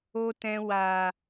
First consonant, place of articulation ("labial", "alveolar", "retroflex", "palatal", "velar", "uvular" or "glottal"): alveolar